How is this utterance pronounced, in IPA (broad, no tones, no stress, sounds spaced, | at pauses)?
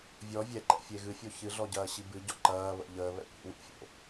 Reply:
vʲ ɔ vʲ ɛ ǃ ɛ̰ fʲ e ɣ ɨ fʲ o ç ɨ ɮ ɔ ɟ ɐː ɕ i b ɨ ɟ ɔ ǃ ɐː β ə̰ ʎ əː β ɛ̰ kʷ ḭ w ḭ fʲ o̰